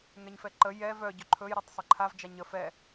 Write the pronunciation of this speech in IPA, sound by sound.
ŋɛɲfɛǃə jɛ vœ ɟɵǃʰɵj ɾatˤsˤəǃʰav d͡ʒaɲə fɛ

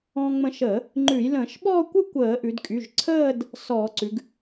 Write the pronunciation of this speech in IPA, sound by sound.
ɔ̃ː˧ŋ͡mə̃˧ʃəː˧˩˧ | ŋ͡ǃʉ˧˩˧jlə̃ː˧˩˧ʃɓɔː˥˧kʷɨ˥˧ kʷəː˧˩˧ʔʉ˩˧dkʼy˩˧˩ʒ ǀʰəː˥˧d | sɔː˧˩˧ǀʉ˩˧ɡ

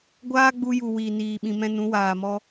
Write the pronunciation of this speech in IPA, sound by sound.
ɡʷaː˦ɡ͡bu˧ju˨ wiː˨niː˨ɓĩ˨ mɛ̃˧nũ˨˦waː˨mɔ˧

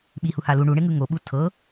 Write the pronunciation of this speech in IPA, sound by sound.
ɓihuha lu ɳuɳeŋɯ ŋoɓu tʰɤ

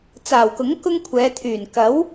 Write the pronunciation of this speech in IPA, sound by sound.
t͡saː˨˩wkʊ˨˥ŋ kʊ˥ŋkʷʰɛː˨˧t̪ʰyː˨˩n kɐ˨˥w

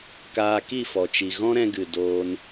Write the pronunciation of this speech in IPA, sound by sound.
kaː˧ki˦˨fɔ˨t͡ʃi˨ ɣɔ̃˦ɾɛ̃˧ɡɨ˨ doː˧n

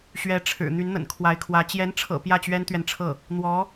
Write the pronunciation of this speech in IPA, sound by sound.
ɕɥɛ˧˥ʈ͡ʂʰɻ̩˨˩ n̪y˧˥nn̪ə̰˨˩nkʰwa˧˥ɪ̯kʰwä˧˥ t͡ɕjɛ˧˥nʈ͡ʂʰɤ̰˨˩ pjä˥˩t͡ɕɥɛ˥nt̪ɥɛ˨nʈ͡ʂʰɤ˥˩ | n̪wɔ˧˥

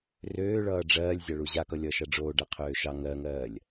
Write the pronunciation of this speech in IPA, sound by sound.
røː ɭʌːɖ͡ʐɜːlʲ zʲɑɭuʑakʌ lʲʌːʃaɖ͡ʐoː ɖɜqʰøːʃɑ ŋɜŋɜːlʲ

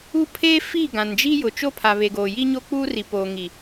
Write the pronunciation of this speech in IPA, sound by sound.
u˦pʰeː˦ fi˦˨ ɡã˨nd͡ʒiː˦ jʊ˨t͡ʃo˦pʰa˨ βe˨ɡoː˨jiː˦ɲo˦ k͡puː˦ri˨ poː˨ŋi˨

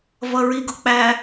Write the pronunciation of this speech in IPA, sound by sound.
vʌɹiɡʊk͡pæ

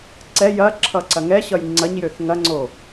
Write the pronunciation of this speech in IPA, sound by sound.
ǀɛ jɐǁʰʌ ǀɐŋɛɕʌj ŋ͡ǀɐɲjøθ ŋɐŋ͡ǀo

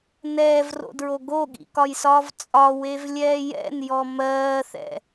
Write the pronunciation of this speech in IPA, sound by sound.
nɛːvro̰dɹo ɡoɠḭkɒjsɒːv t͡sʼɒwevlʲɛː jɛ̰njɔ mɜːθɛ̰

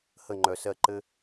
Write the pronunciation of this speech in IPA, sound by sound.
hə˥˧ŋ͡ǃœ˧sɜ˥˧ ǃɘ˥

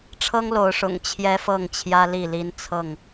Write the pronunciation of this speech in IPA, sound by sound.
ʈ͡ʂʰɤ˦ŋlo˨˦ʊ̯ ʂʊ̰˨˩ŋt͡ɕʰjɛ˦fɤ˥˨ŋt͡ɕʰjä˦ li˥˨li˦n t͡sʰɤ˥˨ŋ

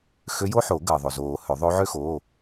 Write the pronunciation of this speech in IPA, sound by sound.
xø˧˥jo˥ħo˨˩˦ ɡəː˩ðˤo˩zoː˨˩˦ hø˨˩˦ðˤo˧˥ʕø˥ xoː˩˧˩

